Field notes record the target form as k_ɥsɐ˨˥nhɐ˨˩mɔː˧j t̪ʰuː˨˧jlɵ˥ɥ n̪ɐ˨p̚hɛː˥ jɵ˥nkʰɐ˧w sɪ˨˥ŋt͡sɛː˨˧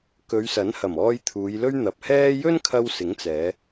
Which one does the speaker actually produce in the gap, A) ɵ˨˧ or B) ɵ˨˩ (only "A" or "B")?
A